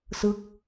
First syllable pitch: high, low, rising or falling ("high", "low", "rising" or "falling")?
falling